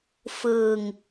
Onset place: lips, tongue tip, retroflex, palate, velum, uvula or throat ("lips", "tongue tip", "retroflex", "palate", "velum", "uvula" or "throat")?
lips